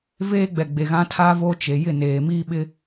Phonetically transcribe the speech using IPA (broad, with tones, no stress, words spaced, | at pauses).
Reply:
veː˦ɡ͡bɛ˨ ɡ͡be˨ɣã˦tʰaː˦ vo˦t͡ʃe˨ jɪ˦˨neː˨ miː˦ɓɪ˦